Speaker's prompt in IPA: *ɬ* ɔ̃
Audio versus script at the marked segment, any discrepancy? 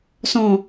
yes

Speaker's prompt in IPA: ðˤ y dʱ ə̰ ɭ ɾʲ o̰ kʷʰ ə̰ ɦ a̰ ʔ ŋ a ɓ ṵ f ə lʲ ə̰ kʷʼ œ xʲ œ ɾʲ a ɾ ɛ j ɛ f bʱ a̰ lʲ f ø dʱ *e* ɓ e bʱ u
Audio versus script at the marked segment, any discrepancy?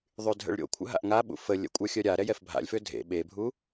yes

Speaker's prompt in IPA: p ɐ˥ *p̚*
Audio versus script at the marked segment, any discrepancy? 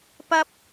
no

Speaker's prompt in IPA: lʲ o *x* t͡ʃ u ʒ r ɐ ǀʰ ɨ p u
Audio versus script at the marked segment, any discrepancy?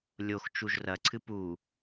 no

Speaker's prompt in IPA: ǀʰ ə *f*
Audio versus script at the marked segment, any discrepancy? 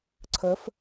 no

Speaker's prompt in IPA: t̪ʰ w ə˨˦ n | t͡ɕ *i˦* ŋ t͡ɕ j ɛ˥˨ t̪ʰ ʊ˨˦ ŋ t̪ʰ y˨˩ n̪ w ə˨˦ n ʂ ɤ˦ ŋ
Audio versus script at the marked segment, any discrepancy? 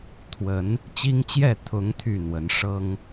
no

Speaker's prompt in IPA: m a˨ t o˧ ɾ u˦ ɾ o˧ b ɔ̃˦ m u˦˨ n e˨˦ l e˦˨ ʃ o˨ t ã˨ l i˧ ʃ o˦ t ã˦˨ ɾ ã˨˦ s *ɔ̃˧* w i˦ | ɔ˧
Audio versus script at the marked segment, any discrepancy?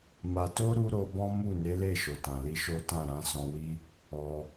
no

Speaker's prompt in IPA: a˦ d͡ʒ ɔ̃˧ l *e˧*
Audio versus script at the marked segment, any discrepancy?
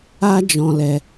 yes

